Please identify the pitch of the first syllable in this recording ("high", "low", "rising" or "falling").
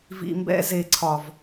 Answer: low